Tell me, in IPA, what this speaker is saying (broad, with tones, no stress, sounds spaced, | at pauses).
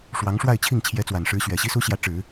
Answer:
ʂ w ɑ˧˥ ŋ ʂ w a˥˧ ɪ̯ t͡ɕʰ i˥˩ ŋ t͡ɕʰ j ɛ˧˥ t͡s w a˨˩ n ʂ ɻ̩˧˥ ɕ ɥ ɛ˨˩ ɕ i˥ s u˥ ɕ j ä˧˥ ʈ͡ʂ ɻ̩˨˩˦